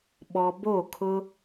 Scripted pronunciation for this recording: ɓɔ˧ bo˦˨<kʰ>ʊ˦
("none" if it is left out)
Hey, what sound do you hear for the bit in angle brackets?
kʰ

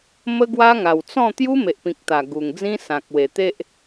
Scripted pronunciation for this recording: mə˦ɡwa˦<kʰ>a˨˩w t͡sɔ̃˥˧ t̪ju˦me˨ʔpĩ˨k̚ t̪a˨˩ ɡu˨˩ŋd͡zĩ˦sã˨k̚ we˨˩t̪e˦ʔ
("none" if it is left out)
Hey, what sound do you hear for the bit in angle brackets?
ŋ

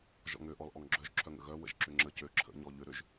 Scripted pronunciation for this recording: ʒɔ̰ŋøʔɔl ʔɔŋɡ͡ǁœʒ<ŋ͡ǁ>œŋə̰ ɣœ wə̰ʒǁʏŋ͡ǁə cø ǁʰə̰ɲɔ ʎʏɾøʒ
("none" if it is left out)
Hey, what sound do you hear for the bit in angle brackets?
ǁʰ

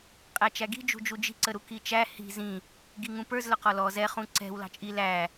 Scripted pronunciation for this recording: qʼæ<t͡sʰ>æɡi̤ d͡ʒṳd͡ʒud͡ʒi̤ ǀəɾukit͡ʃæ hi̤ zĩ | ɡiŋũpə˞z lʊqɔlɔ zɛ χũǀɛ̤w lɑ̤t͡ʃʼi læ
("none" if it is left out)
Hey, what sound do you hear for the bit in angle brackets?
t͡ʃ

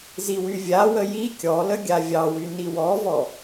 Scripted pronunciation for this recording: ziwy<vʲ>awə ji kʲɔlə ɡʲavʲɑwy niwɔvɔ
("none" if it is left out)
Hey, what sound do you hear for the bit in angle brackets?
vʲ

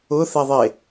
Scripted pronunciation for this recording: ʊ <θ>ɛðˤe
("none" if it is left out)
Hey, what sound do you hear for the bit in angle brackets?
θ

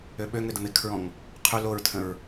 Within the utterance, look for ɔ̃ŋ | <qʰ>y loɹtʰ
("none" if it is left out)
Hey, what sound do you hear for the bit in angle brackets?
qʰ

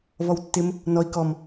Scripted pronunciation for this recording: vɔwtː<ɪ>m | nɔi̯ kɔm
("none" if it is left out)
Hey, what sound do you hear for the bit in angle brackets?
ɪ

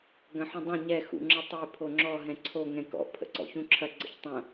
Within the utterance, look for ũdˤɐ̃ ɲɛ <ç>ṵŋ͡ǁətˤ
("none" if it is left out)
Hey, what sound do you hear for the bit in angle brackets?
x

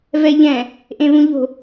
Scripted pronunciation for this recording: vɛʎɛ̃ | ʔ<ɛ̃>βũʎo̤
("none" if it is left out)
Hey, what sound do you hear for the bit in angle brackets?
ẽ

